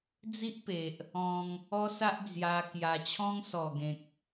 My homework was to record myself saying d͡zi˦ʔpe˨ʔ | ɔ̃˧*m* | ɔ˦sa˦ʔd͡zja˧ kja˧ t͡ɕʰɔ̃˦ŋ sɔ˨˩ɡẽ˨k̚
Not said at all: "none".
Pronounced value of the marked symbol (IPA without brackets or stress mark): ŋ